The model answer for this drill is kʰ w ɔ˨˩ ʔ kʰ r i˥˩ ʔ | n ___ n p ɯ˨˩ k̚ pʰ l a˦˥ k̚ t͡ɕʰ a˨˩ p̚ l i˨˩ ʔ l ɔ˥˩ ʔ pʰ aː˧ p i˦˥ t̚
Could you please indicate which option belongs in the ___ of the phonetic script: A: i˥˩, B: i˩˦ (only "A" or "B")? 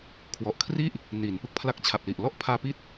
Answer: B